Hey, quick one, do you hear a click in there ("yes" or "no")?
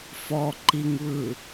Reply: yes